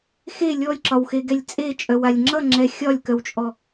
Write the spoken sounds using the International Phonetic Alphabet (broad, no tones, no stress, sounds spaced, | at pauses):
x e lʲ ɔ lʲ ǁ ɒ w x e ɡ ɛ lʲ t͡sʼ e t͡ʃʼ œ w a lʲ ŋ͡ǁ ʌ ŋ͡ǁ ɛ xʲ ɒ lʲ k œ w t͡ʃʼ ɔ